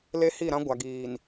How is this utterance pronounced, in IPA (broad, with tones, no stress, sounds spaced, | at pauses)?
l e˦ h i˦˨ ɾ ã˦ ɡʷ a˨ ɡ iː˨ n